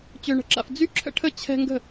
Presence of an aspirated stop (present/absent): present